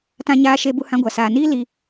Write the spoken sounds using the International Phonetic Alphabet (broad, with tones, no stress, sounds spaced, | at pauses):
t ã˦ ɲ aː˦ ʃ e˦ b u˦ h ã˦ ɡʷ a˨ s aː˨ n iː˦ l i˦